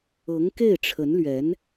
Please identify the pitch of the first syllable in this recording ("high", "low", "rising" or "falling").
rising